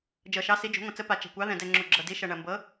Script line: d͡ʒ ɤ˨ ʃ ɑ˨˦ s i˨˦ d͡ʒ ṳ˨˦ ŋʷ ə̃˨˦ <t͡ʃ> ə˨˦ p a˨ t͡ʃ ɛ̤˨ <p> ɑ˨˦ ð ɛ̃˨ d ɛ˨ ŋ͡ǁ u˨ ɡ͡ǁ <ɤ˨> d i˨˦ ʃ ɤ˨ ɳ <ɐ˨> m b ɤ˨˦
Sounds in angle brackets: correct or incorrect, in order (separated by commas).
incorrect, incorrect, correct, correct